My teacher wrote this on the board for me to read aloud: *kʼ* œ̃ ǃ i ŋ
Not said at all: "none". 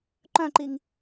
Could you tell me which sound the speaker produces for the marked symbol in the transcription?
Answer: ǃ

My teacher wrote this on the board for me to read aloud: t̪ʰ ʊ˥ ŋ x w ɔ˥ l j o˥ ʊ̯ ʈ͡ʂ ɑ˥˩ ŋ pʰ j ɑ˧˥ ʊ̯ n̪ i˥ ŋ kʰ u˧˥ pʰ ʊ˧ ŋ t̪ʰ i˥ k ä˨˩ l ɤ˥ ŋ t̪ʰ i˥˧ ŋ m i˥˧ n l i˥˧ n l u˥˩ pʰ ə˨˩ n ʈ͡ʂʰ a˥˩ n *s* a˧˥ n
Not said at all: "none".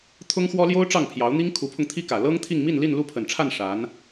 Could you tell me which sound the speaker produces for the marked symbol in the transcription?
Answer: ʂ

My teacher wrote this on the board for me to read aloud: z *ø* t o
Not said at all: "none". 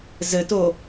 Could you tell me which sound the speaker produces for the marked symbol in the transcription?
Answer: ɘ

